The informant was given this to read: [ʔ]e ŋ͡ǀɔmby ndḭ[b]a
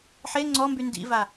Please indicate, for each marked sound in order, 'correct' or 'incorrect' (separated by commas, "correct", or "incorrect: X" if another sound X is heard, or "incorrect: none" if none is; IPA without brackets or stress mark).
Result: incorrect: ħ, incorrect: v